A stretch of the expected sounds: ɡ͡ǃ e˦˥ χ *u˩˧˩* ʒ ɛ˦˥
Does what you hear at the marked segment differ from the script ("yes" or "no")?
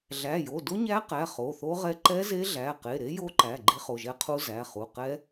yes